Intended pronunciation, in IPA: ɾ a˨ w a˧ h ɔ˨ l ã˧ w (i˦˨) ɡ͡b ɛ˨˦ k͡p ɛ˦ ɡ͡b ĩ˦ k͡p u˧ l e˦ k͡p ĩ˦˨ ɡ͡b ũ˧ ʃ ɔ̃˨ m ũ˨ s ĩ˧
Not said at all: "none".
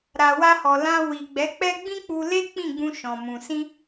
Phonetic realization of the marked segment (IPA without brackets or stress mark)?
i˨